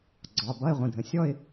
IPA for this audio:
ɡ͡ǀɒ˩˧˩ bʌ˧˥˧ɪ̯ʁʷə̃˩˧˩dʱə̃˩ sʲɔ˥˧ɪ̯

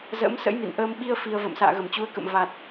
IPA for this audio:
zə̰ː˧˥msə̰˧˥jmḭ˧˨nʔəː˧m ɓi˧ə̯ fi˧ə̯ və̰ː˧˨msa̰ː˧˨ɣə˧˩mt͡ɕu˨˦ə̯ kə̰˧˨m va˨˩t̚

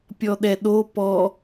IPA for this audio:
pʲɔɗɛɗo pɔ

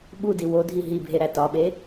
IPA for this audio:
ɓudi wodʱi ɦibʱeɾæ tɒɓe

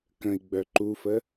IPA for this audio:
kə̃i̯ɡ͡bœ ǃufə

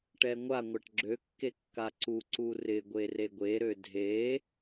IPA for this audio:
ʈɛŋʷaŋʷaʈ ɡ͡ǁøkːe kːaǀuǀu rɪɡʷe reɡʷeɾø dʱe

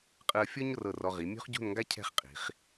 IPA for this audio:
qʼɯ˧ə̯fʲɔ˥ɲrɤ˧˩ rɔ˧ ʁi˩˧ mʲo̤˥χɟo̤˥˧nŋɡa˥ cʰɛ̤˥˧χqʼi̤˩˧χ

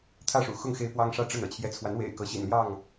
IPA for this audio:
t̪ʰä˥˨ʂṵ˨˩xʊ˥˨ŋ xe˦ɪ̯pwɑ˦ŋʂä˥˨ ʈ͡ʂə˥˨n ɤ̰˨˩t͡ɕʰjɛ˨˦t͡sʰwa˨˦n wḛ˨˩ɪ̯kɤ˨˦ɕḭ˨˩nljɑ˥˨ŋ

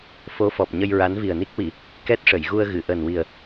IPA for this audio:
fo˧˥fɔ˨˩p̚ɲə˧j ɹa˧˥nvi˨˩ə̯ni˦˥k̚wi˨˩˨ | kɛ˦˥t̚ʂə˨˩˨jɣu˧ə̯ ɣɨ˨˩˨ʔəː˨˩nwi˨˩ə̯

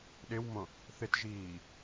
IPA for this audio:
ɗɪwmõ | θɪtʒiː

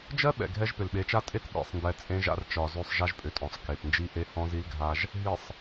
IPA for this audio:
d͡ʒɜ˦ ɓɛ̰˨ɡʱɛ˦ʒpʏ˨l ɓe˨˦t͡ʃa˦ tʼe˦t ɓḭ˨sˤndɛ˨ t͡sʼẽ˦ʒa̰˦rt͡ʃɒ˨zø˦sˤ ʒa˦ʒpʼʏ˨tʼɔ̃˨sˤ ke˨p nd͡ʒi˦ʔe˦ hɔ̃˦zi˦lɡʱa˦ʒ | ɦi˨sˤ

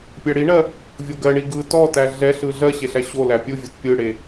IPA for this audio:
pʲæɽiɳɜ | vʲoɡɜɳi ɡɯ tɔtæ ɮɛɬɯ ɮɜɕe ɬæɕolæ pʲɯvʲot pʲɯɽe

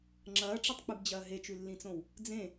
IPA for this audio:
ŋ͡ǁɐːʈ͡ʂɐtˤk͡pɨbd͡ʑɐː ɦet͡ʃʉlːĩt͡sõw | d͡zẽ

